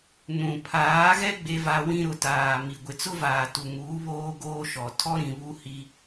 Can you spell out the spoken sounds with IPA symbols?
n ũ˨ pʰ aː˨˦ ɣ ɛ˦ ɡ͡b e˦ v a˦ w ĩ˦ ɾ ʊ˨ t aː˨ m i˨ ɡʷ ɪ˨ t͡s ʊ˦ v aː˨ t u˨ ŋ uː˨˦ β oː˦ ɡ oː˦ ʃ ɔ˨ tʰ ɔ˦ ɾ ĩ˨ β u˦ h i˦

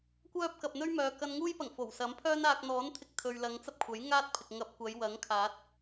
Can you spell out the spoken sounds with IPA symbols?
kʷ œː˥ p̚ k ɐ˨ p̚ n̪ ɵ˥ ɥ m œː˨ k ɐ˧ n ŋ uː˥ j p ɐ˨˩ ŋ f o˨˩ w s ɐ˨˥ m pʰ œː˥ n aː˧ k̚ n̪ ɔː˨˥ n t̪ʰ ɪ˧ k̚ t̪ʰ ɵ˨ ɥ l ɐ˨˧ ŋ t͡s ɐ˥ p̚ kʷʰ ɐ˨˥ j ŋ aː˥ t̚ pʰ ɪ˨ k̚ ŋ ɐ˧ p̚ kʷ ɐ˨˧ j w ɐ˨˥ ŋ kʰ aː˨˥ t̚

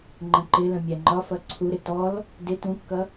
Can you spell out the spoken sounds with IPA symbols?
ŋ͡ǃ ə̃ ǃ ɪ l ə̃ mʲ æ ŋ͡ǃ ɒ f ʌ ǀʰ u ɾ ɪ t ɔ l | d ɪ t ũ kː ʌ

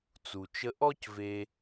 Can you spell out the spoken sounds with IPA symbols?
t͡s u˩ t͡ʃ ə˧ ʔ ɔ˥ c v e˧

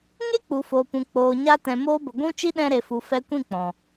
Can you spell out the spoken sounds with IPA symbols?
ŋ e˦ k͡p u˨ f oː˨ p ũ˨ k͡p oː˨ ɲ a˧ t ɛ̃˨ m oː˧ b ə˨ ɡʷ ũ˦ t͡ʃ i˦ ɗ ɛ̃˧ ɾ e˨ f u˨ f ɛ˧ kʷ ĩ˦˨ k͡p ɔ̃˨

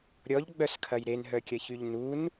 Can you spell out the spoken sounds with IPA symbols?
ɾʲ ɔ ʎ ɡ͡b œ s kʰ ɐ j ɾ e n ɦ œ kʲ ɐ ç y ʎ n u n

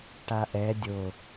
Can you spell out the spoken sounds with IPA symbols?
ʈ a ʔ ɛ dʲ o

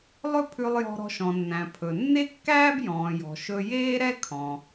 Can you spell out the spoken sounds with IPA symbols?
lˠ ɵ˥ pʰ ʉ˧ lˠ j ɔ̤˧ ɾ ɔ̤˧ ʃ ɔ̃˩ nː æ̃˩ pʰ ɵ˩ nː e˥ kː æː˥ b j ɔ̃ː˩ j ɔ̤˩ ʃ ɵ˧ j eː˥ ɾ ɛ˥ kʰ ɔ̃˩

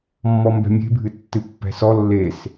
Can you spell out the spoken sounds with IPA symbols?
mː ɔ m b ɛ̤ mʲ e̤ bʱ ɨ tː ɨ pː ɛ̤ s ɔ lː e s

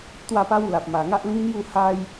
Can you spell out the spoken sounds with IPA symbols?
t̪ w a˥˧ p a˦ w l a˨ p̚ m a˨˩ ŋ a˦ ʔ l ĩ˦ n̪ j u˥˧ h a˦ j

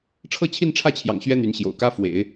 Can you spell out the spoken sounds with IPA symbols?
ʈ͡ʂʰ ɤ˥˧ t͡ɕʰ i˥˧ n ʈ͡ʂʰ ä˥˩ t͡ɕʰ j ɑ̰˨˩ ŋ ɕ ɥ ɛ˥ n̪ y˧˥ n ɕ j o̰˨˩ ʊ̯ k ä˥ f w ḛ˨˩˦ ɪ̯

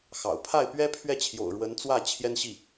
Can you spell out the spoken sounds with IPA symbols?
x ɑ̰˨˩ ʊ̯ pʰ a˥˩ ɪ̯ p ɥ ɛ˥ pʰ ɥ ɛ˥˩ t͡ɕʰ j o̰˨˩ ʊ̯ ɻ w ə˧˥ n t͡s w ä˥˩ t͡ɕʰ j ɛ˥ n ɕ i˥˩

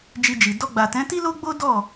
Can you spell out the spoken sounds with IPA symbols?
d͡ʒ i˧ d͡ʒ i˨ d ɔ˧ ɡ͡b a˨ t ɛ̃˨˦ t i˦ l o˦ ɡ͡b o˦ d ɔ˦˨

